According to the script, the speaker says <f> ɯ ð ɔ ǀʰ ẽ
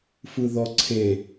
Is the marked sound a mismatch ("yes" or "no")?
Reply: no